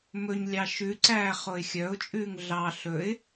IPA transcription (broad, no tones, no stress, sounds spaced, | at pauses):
m ɵ ɲ lʲ ɑ ʃ ʉ ǀ æː χ o ɪ̯ xʲ œ ʊ̯ t͡ʃʼ ʉː ŋ ɮ ɑ ɬ ɵ ɪ̯